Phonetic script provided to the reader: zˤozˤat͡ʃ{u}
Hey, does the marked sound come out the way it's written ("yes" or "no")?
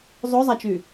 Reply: no